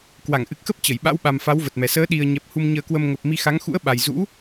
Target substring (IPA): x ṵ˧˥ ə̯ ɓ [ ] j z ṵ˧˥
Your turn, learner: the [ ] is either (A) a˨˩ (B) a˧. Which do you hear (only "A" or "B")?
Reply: A